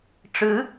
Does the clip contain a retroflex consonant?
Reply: yes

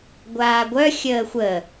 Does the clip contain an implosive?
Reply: no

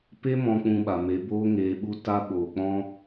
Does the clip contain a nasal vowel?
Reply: yes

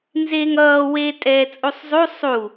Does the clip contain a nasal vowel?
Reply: no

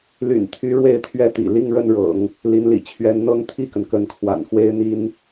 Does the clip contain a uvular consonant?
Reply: no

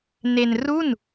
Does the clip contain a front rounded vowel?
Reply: no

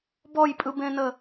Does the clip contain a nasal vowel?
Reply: yes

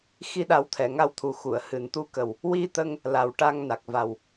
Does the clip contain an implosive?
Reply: yes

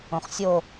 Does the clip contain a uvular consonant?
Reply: yes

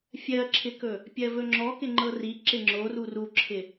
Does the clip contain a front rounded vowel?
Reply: no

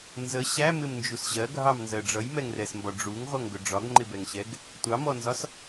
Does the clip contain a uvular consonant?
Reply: yes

